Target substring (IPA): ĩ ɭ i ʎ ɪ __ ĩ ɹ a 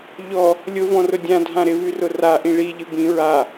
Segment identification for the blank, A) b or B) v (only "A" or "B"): A